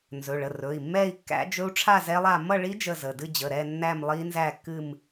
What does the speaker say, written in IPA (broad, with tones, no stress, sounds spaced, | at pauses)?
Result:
n z ɵ˩˧˩ ɭ ə˩˧˩ r ɵ˩˧˩ i̯ mː ɛ˥˧ i̯ kː æ̰˦˥ d͡ʒ ɵ˦˥ u̯ ʈ͡ʂʰ a˥˧ z ɛ˦˥ lˠ a˥˧ m ʌ˥˧ ɭ i˦˥ d͡ʒ ə˥˧ z ə˩˧˩ d ɨ˥˧ d͡ʑ ə˩˧˩ ɾ ɛ˥˧ nː æ˥˧ m lˠ i˦˥ n z æ˥˧ kː ɨ˥˧ m